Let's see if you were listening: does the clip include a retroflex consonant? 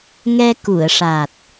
yes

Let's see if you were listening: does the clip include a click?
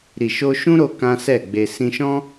no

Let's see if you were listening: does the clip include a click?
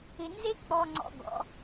yes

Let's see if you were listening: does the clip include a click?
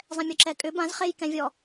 yes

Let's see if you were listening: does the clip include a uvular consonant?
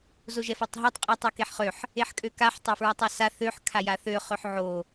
yes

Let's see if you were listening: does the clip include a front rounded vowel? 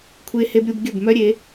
yes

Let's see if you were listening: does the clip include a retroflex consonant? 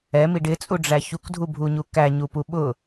yes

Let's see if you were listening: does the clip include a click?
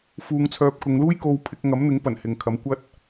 no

